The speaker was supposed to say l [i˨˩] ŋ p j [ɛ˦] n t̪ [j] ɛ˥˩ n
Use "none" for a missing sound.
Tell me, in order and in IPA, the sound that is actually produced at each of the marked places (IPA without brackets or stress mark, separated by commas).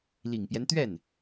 i˨˩, ɛ˦, ɥ